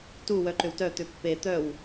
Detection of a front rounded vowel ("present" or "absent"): present